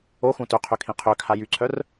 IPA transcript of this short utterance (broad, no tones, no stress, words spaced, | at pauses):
oxũ tøqʰøkʰĩ qʰøkʰa jyǀʰœr